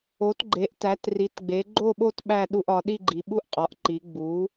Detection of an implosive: present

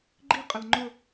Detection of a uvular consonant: present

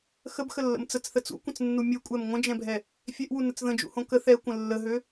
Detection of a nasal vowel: present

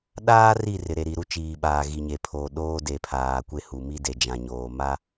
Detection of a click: absent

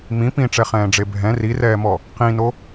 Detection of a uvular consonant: present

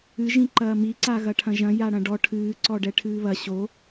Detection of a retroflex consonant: present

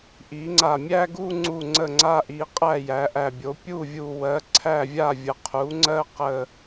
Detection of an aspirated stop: present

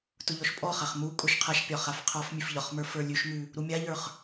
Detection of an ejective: present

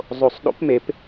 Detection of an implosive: present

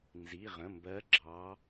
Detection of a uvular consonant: present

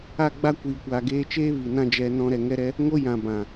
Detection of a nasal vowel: present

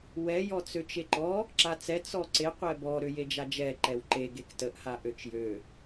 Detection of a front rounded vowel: present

